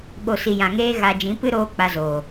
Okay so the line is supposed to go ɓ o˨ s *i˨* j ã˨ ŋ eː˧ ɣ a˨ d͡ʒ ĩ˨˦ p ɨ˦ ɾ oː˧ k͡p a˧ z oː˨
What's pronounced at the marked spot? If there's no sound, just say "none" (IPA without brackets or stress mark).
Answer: i˨